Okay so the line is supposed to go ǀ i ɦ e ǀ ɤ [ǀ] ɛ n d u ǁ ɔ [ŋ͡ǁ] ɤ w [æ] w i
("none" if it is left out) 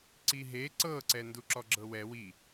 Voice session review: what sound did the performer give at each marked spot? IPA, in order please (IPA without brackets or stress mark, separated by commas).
ǀ, ɡ͡ǁ, ɛ